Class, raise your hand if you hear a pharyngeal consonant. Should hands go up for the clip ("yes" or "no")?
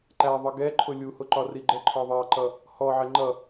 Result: yes